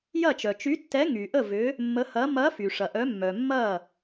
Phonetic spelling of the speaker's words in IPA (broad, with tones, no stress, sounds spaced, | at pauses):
j ɐ˥˩ t͡ʃ œ˩ t͡ʃ y˨˥ tː ɛ˨˥ ŋ y˩ ʔ ə˥˩ v ʏ˨˥ | mː ə˨˥ h ɐ˨˥ m ɐ˨˥ f y˩ ʂ ɐ˩ ʔ œ˨˥ mː œ˩ mː ɐ˥˩